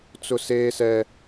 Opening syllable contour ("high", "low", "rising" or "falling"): high